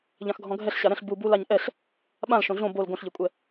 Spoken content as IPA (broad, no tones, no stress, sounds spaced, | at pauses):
ʎ ã x ɡʱ ɔ̃ ɡʱ ɛ ɬ ɕ a ɾ ɛ̃ ɬ b u b u l a ɲ ʔ ɛ ɬ | ɓ ã l ʃ õ ɮ õ b o l ɡ õ ɬ ʎ ɘ kʷʼ ɛ